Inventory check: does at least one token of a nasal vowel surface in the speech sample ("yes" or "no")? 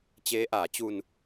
no